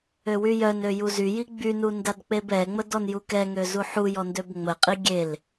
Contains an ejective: yes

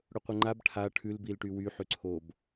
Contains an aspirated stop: yes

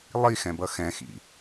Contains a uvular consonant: no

